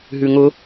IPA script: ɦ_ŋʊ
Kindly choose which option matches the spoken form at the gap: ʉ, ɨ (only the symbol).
ʉ